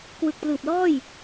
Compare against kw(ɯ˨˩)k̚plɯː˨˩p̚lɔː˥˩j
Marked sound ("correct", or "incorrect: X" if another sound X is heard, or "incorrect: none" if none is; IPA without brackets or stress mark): correct